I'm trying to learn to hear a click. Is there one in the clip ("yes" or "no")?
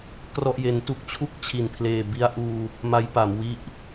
no